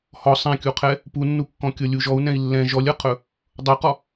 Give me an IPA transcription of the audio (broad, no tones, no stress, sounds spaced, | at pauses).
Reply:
h ɔ sˤ ɛ̃ kʲ u qʰ ɛ | p u nː u kː ɔ̃ kʲ ɤ lʲ u ʒ ɔ u̯ n ɛ̃ i̯ lː ɛ̃ ʒ ɔ lʲ ɤ qʰ ɵ | dˤ ɤ q ɔ